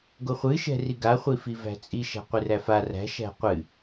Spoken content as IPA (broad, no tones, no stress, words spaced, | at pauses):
ɡoχʷɨ ʃɛ̤riɡa χʷifivæ̤t͡sʼi ʃæ̤qʷɨræfa ræ̤ ʃæ̤qʷɨ